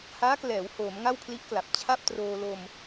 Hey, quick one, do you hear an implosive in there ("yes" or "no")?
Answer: no